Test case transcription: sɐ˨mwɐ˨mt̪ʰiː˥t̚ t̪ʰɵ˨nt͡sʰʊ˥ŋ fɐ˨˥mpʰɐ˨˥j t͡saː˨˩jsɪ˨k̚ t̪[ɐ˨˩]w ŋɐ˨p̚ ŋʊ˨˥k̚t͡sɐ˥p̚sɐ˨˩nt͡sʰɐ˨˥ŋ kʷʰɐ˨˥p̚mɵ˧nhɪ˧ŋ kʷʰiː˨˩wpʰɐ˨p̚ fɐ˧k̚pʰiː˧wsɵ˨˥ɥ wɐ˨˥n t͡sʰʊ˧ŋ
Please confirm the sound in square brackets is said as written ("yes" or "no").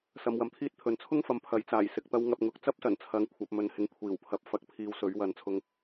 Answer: no